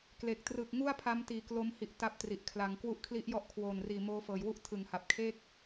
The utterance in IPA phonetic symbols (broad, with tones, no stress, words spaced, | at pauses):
kle˨˩k̚ trɯː˨˩k̚ŋu˥˩a̯pʰa˦˥mtiː˨˩ klo˦˥m hi˦˥ʔta˥˩p̚tri˨˩ʔ kʰla˩˦ŋ kwu˦˥ʔkʰli˦˥ʔjɔ˦˥ʔ kʰwoː˨˩nriː˨˩ moː˦˥fɤː˩˦j wu˥˩ʔ tʰɯ˩˦ŋha˨˩p̚kʰeː˥˩k̚